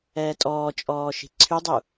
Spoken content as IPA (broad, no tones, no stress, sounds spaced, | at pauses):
ɛː tʼ ɔː t͡ʃʼ ɔː ʃ i̤ ǀʰ y dˤ u